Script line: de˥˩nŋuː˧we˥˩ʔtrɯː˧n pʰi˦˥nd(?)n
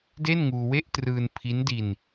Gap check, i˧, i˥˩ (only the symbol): i˧